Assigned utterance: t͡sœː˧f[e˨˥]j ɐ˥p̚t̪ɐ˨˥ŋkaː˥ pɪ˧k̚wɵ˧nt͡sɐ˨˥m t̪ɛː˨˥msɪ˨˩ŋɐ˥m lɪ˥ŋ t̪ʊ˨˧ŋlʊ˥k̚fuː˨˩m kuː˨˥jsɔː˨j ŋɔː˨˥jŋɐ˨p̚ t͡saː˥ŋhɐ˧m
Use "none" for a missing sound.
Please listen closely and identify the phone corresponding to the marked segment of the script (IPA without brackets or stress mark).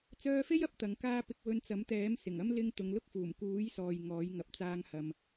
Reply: e˥